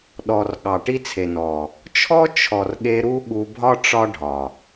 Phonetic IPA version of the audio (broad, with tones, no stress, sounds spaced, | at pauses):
ɗ ɔ˨ r ɠ ɑ˨ ʈ i˦ t͡sʰ e˨ n ɔ˨ | t͡ʃʰ ɔ˦ t͡ʃʰ ɔ˨ r ɠ e˧ ɾ u˦ ɠ u˧ bʱ ɒ˦ ʈ͡ʂ ɒ˦ ɖʱ ɒ˨